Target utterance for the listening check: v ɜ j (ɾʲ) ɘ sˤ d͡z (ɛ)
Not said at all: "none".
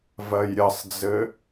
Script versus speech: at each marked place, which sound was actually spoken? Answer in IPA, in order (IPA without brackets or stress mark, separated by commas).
ɾʲ, ɘ